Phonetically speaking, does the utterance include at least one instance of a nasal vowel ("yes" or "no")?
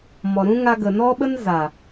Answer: yes